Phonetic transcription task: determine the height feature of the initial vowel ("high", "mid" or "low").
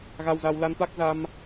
low